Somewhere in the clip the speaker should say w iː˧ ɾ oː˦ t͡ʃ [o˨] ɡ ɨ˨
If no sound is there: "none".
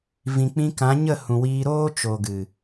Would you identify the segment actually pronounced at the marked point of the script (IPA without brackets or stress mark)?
o˨